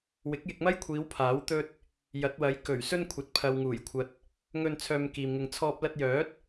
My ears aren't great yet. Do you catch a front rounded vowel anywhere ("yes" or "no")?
yes